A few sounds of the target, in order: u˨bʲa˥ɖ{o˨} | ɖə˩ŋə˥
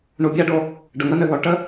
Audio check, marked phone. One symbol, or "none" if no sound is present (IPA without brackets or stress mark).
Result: o˨